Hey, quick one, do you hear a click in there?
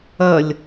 no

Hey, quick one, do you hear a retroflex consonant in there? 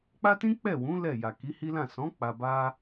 no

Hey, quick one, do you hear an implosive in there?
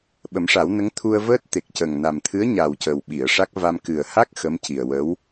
yes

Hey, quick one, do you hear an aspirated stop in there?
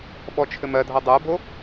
yes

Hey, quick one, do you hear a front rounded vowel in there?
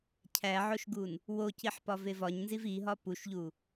no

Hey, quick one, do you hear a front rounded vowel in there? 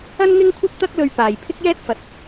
no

